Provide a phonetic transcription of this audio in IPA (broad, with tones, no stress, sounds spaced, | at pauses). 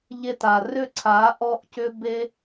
ʎ e˧ t a˨ r ʏ˦˨ ǀʰ a˨˦ ʔ ɔ˧ ʔ c ʏ˧ b e˦